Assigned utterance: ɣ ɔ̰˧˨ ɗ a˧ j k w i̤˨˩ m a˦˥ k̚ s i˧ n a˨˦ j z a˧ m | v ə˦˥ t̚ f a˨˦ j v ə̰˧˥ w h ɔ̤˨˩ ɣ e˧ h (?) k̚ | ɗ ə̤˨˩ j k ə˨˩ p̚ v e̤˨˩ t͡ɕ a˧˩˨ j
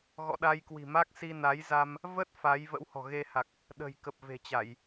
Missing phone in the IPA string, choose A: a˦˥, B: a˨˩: B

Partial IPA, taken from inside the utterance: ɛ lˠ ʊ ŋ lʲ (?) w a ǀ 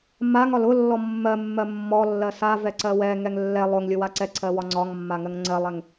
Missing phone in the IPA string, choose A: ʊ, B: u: A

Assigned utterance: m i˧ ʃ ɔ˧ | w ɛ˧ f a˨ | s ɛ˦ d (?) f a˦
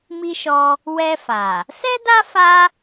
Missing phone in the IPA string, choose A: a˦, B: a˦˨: A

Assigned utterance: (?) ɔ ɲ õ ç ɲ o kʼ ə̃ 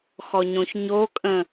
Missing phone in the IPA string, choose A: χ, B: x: B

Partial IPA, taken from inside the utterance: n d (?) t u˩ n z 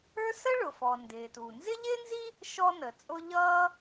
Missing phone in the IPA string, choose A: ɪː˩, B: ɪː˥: A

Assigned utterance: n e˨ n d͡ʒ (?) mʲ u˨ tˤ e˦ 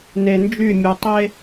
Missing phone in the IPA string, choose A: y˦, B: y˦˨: B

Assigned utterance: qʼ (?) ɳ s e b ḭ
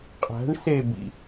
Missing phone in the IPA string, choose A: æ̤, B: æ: A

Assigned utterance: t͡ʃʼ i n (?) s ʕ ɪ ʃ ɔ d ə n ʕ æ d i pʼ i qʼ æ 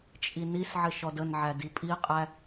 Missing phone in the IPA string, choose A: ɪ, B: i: B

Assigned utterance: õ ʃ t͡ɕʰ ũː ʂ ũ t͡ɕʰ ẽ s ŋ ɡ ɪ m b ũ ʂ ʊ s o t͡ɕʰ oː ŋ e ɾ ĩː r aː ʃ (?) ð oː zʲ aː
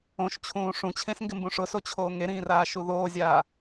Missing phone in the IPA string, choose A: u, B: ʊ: A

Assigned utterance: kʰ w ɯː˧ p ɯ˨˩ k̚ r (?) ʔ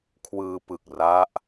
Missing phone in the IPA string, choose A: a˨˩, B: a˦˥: B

